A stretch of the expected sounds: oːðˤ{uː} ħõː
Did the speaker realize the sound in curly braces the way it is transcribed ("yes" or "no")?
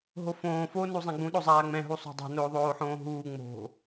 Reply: no